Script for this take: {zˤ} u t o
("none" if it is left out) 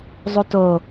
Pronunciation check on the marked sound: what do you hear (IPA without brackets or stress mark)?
zˤ